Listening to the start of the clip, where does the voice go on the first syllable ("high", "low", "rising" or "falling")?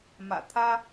low